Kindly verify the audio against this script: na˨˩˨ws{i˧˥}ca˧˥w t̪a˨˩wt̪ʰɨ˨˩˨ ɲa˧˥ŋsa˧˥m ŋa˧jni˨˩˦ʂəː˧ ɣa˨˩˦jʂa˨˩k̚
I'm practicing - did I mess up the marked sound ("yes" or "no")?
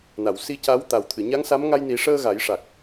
no